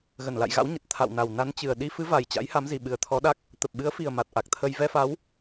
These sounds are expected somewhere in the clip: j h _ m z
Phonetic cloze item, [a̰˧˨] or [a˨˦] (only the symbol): a˨˦